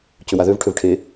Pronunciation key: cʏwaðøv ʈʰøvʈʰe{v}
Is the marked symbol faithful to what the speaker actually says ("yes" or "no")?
no